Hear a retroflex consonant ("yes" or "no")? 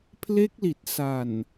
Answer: no